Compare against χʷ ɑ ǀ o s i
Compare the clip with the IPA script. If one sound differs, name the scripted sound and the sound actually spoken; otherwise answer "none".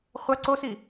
ɑ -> ɐ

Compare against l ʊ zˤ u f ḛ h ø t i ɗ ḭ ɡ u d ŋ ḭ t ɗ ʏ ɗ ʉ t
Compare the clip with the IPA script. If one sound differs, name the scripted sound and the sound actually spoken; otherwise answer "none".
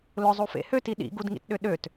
ʉ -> ø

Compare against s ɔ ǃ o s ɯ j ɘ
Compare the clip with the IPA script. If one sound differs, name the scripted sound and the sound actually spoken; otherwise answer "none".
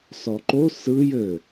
none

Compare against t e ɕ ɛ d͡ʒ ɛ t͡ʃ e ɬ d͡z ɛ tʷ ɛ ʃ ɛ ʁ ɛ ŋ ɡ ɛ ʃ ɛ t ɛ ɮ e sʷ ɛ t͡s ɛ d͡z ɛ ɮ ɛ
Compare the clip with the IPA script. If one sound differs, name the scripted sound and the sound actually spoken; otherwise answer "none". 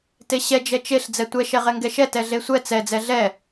none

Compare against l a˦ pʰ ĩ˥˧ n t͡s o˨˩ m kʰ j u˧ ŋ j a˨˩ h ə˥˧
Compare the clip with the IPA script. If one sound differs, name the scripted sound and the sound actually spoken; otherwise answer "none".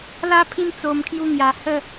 none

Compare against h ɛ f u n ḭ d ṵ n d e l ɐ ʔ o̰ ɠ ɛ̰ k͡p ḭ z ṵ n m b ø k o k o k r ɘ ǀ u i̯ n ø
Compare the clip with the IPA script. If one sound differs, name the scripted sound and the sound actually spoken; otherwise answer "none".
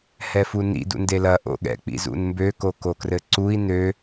none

